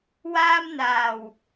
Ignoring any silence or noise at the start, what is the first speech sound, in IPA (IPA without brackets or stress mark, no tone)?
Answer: w